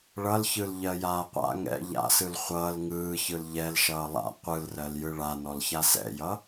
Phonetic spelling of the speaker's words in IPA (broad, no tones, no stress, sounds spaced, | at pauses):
ɭ ʌ l ç ɯ l ʎ ɜ j aː qʷ a̰ ŋ ɛ̰ ʎ a̰ s ɯ l χʷ ʌː l ŋ ɯː ç ɯ l ʎ ɛ l ʃ ʌː lˠ a̰ qʷ ɯ l r ɜ l j ɯ ɭ a n ɔ l ç a s ɛ̰ j ʌ